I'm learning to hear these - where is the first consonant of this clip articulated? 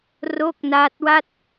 tongue tip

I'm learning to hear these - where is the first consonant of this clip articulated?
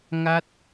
velum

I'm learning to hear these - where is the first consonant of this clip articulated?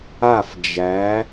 lips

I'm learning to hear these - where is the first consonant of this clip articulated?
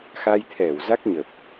velum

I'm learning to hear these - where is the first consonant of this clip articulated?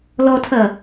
tongue tip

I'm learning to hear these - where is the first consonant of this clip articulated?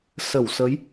tongue tip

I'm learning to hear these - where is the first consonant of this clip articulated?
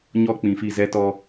palate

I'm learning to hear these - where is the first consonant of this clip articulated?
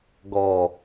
velum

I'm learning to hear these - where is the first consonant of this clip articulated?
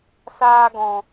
tongue tip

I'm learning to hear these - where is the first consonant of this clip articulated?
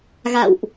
velum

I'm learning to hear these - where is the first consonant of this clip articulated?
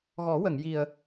velum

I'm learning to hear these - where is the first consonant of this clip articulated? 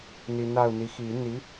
tongue tip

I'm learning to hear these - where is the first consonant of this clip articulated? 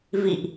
lips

